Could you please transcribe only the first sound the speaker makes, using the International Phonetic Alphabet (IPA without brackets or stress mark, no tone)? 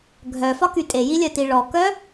ɡʱ